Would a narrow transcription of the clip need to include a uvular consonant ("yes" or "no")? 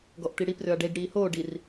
no